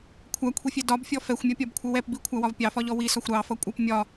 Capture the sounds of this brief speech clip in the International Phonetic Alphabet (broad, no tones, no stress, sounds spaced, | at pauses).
kʷʰ æ kʷʰ i fʲ ɛ d ɒ b fʲ ɔ f ɛ xʷ mʲ ɒ pʲ ɒ b kʷʰ ʌ w ɛ p b i kʷʰ æ w ɒ v pʲ ɑ f ɒ ʎ ɔ w i s ɒ xʷ ɾ ɑ f ʌ kʷʼ ʌ p mʲ ɒ